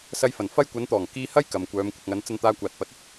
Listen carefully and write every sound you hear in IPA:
s ɐ˧ j f ɐ˨˩ n f ɐ˧ j kʷ ɐ˨˧ n t̪ ɔː˨˩ ŋ k iː˧ h ɐ˥ j k ɐ˨ m kʷ œː˨˧ m kʷ ɪ˨ k̚ ŋ ɐ˨˧ n t͡s ɐ˧ n t̪ aː˧ kʷ aː˨ t̚ p ɐ˨˥ t̚ ɵ˥ t̚

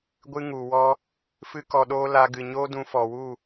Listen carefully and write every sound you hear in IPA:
ɡʷ ɨ˧ ŋ u˨ w ɔ˧ | f ɨ˦ k ɔ˧ ɗ oː˦ l a˧ ɡ ɨ˨ ɲ oː˦ d ũ˧ f ɔ˨ w u˦˨

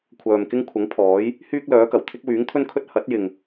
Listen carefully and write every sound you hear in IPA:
kʷʰ œː˨ m k ɪ˥ ŋ kʷʰ ɐ˨˥ ŋ pʰ ɔː˨˥ j | h yː˥ k̚ l œː˨˥ k ɐ˨˩ w t̪ʰ ɪ˥ k̚ w yː˨˥ ŋ t̪ʰ ɵ˥ n kʰ ɵ˥ t̚ h ɐ˨˥ t̚ j ɪ˨ ŋ

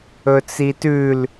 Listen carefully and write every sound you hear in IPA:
ɵ t͡s i t ʉ l

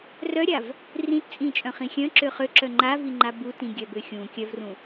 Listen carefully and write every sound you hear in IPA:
r œ ɾʲ a v | r ĩ t t͡sʼ ĩ t͡ʃʼ œ̃ χ ĩ xʲ œ̃ ǁ ø χ ø ǁ œ ŋ͡ǃ a v i ŋ͡ǃ a b u t ĩ ɡʲ œ b ø xʲ ũ kʲ œ v r ũ

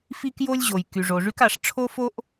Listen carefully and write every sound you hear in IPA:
f i˥ k j o˥ lʲ ʑ o˩ j k y˩ ʐ o˩ ʐ y˥ k a˩ ʂ ʈ͡ʂʰ o˥ f o˥ ʔ

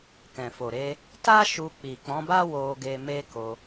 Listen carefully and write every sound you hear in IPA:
k ɛ̃˨ f o˨ ɾ e˧ | t a˦ ʃ u˧ k͡p i˨ k͡p ɔ̃˨˦ b a˦ w o˦ ɡ e˦ m e˦ k o˧

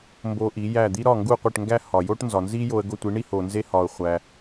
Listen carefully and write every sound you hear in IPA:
m b o˧ ʔ i˩˥ j æ˥˩ d̪ i˥ ɾ ɒ˥˩ ŋ ɡ u˥˩ qʷ e˥˩ ʈ ŋ ɡ æ˥ h ɒ˩ j o˥ ʈ n z ɒ˩ n z i˥ j o˧ ə̯ ɡ o˥˩ tʷ i˩˥ ɳ i˥ h o˩ n z e˥ h ɒ˩ ʊ̯ χʷ æ˩

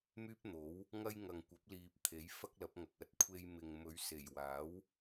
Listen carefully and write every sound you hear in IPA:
m yː˥ p̚ n̪ o˨˥ w | ŋ ɐ˥ j ŋ ɐ˨ ŋ kʷ ɐ˨˥ p̚ l iː˨ p̚ t̪ʰ e˨˥ j f ɐ˥ k̚ l ɐ˨˥ p̚ ŋ ɐ˨ k̚ ɐ˨ t̚ kʷʰ e˧ j m ɪ˨ ŋ m ɵ˨˧ ɥ s e˨˩ j w aː˨˥ w

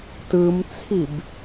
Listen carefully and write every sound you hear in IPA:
t ɯ m t͡sʰ i b

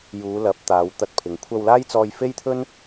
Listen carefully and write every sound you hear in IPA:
j uː˨˧ l ɐ˨˥ p̚ t̪ aː˨˧ w t̪ ɐ˧ t̚ pʰ ɪ˨ ŋ kʷʰ ɐ˧ w l aː˥ j t͡s ɔː˧ j f e˥ j t̪ʰ ɵ˥ n

